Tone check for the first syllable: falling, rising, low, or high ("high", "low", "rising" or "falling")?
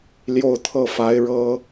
falling